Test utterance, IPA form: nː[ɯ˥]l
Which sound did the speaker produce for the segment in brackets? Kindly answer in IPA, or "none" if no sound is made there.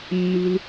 ɯ˥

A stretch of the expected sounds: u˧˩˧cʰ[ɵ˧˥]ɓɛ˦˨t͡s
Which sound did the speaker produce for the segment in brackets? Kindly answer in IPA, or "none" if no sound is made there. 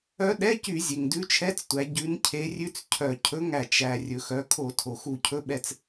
ɵ˧˥˧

